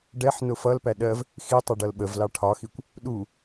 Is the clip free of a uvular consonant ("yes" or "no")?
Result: yes